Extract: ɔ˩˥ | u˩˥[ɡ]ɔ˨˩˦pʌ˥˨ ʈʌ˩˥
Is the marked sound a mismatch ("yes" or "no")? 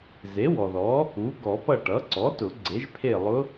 no